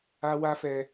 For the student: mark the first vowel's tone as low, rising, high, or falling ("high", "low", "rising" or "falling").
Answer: high